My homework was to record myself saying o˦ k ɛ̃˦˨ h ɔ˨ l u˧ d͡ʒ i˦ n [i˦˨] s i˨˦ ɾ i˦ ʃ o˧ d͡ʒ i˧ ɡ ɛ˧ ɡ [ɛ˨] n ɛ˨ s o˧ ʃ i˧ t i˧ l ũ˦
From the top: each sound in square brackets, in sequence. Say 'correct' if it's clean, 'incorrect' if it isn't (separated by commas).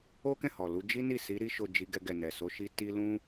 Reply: correct, correct